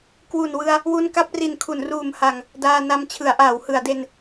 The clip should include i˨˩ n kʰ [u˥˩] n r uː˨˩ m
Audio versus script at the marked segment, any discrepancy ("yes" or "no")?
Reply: yes